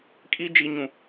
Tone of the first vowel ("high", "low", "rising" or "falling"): high